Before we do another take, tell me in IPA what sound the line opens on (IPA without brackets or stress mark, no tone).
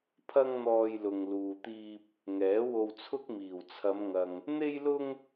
pʰ